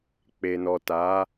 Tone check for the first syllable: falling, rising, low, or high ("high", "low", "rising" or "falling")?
low